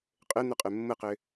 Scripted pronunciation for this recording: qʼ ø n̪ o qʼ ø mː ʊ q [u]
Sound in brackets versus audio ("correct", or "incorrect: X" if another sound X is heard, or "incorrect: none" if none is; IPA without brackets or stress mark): incorrect: ø